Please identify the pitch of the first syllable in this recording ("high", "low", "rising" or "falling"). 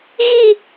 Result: falling